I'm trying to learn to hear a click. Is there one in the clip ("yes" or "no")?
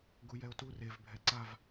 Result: yes